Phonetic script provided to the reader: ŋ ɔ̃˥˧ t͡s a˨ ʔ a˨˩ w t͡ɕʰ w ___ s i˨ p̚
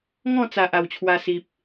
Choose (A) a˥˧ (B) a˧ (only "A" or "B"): B